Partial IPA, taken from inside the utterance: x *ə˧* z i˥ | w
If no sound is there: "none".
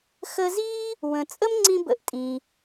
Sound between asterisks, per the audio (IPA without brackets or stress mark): ə˧